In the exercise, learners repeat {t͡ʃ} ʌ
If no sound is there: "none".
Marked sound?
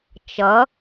t͡ʃ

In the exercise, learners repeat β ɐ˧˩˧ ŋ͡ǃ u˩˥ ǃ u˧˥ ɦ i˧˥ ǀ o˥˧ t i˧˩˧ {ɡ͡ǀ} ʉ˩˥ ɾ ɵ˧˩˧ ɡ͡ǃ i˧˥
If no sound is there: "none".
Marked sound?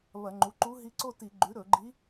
ɡ͡ǃ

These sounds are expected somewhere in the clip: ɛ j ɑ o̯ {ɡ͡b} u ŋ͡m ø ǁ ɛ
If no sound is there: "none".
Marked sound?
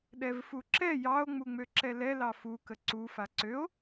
ŋ͡m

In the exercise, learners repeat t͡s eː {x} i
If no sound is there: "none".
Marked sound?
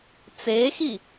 x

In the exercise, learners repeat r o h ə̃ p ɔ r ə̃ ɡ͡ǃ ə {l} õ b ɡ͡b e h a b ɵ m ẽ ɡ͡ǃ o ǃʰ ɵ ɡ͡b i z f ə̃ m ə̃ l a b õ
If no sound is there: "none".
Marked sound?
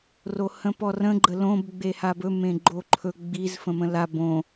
l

